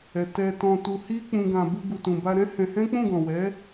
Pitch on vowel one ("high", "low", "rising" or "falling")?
low